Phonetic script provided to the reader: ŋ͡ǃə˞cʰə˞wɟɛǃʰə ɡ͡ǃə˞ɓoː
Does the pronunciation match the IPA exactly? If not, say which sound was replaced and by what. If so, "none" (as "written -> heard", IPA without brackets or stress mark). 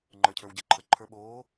ɡ͡ǃ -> ǃʰ